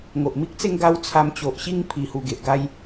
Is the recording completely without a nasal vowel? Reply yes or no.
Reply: yes